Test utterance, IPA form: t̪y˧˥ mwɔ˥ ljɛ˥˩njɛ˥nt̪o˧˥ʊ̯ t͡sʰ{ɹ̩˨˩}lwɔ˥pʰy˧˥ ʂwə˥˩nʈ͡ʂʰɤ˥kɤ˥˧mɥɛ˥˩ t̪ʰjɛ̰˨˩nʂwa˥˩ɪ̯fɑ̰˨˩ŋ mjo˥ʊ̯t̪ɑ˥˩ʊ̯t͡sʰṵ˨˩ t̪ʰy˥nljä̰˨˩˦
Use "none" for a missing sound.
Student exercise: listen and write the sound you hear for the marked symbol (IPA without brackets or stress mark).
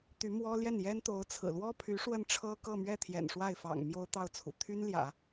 ɹ̩˨˩